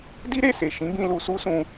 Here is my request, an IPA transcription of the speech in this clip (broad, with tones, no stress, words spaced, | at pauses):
di˦ɾe˦˨se˨ ʃĩ˨˦bĩ˧ lu˧su˦sũ˧